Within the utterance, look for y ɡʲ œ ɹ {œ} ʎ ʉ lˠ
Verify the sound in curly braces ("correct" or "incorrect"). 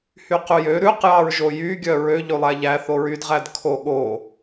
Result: incorrect